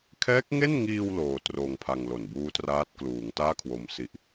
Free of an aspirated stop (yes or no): no